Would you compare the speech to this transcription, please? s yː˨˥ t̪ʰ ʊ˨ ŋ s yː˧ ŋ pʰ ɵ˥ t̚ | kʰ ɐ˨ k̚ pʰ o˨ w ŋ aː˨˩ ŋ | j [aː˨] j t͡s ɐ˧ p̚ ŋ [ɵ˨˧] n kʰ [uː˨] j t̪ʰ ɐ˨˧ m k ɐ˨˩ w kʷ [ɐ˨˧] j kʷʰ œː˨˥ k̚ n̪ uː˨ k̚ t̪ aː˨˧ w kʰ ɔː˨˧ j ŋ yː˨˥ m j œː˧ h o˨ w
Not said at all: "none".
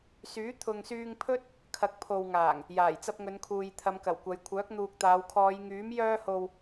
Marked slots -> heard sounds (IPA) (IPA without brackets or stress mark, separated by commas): aː˨˩, ɵ˨˧, uː˨, ɐ˨˧